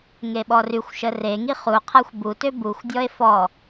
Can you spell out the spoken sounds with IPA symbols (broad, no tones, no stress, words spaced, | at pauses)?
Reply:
ŋeɓɔryxʷʃə reŋi χuqʰaxʷ butø buxʷdʲɔe̯ fɔ